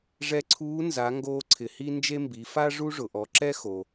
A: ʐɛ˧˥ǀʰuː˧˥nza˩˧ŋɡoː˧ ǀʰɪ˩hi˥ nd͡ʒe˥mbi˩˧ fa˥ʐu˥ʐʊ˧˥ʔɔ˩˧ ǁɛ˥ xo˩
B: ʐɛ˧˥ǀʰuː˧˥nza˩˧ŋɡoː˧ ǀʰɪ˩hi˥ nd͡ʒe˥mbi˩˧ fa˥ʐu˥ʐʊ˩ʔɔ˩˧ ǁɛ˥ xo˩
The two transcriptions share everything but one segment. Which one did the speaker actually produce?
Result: B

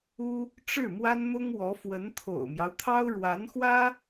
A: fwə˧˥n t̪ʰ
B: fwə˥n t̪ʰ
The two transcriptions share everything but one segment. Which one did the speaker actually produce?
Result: A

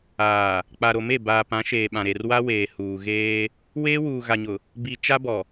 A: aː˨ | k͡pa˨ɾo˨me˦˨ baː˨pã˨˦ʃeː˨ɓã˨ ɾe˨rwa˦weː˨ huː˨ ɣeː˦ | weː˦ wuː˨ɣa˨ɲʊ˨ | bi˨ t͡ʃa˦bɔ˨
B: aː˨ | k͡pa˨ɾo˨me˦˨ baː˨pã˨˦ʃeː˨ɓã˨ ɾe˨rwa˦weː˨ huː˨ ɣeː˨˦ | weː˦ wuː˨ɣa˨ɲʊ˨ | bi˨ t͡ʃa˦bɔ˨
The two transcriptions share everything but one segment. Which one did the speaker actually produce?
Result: A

